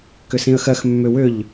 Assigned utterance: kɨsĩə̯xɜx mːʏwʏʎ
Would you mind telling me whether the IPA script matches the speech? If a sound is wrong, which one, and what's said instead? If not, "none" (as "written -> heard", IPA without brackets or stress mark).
ɨ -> ʏ